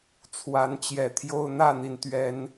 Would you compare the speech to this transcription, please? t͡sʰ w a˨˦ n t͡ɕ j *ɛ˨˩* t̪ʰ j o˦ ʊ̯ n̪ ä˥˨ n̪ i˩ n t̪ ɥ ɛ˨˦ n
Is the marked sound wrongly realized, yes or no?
no